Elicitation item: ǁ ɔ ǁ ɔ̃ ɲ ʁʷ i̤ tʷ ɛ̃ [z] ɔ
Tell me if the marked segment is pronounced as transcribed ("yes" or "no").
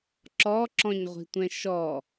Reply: no